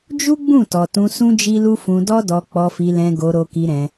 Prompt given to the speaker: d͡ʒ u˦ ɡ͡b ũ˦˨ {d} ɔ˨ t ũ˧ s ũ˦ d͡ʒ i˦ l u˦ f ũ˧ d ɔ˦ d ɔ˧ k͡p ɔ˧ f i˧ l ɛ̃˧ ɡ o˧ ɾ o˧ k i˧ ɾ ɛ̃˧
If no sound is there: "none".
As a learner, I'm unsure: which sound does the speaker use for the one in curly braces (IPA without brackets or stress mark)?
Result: t